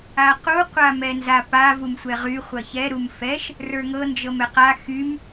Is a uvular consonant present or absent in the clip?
present